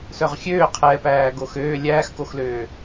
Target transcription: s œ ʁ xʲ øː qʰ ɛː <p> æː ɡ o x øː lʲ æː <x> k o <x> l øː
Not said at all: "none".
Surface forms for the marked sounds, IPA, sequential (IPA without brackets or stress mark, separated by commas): p, x, x